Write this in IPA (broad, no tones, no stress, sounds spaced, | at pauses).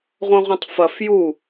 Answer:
ʁʷ ɐ̃ ʁʷ ɐ̃ tˤ f ɐ f j u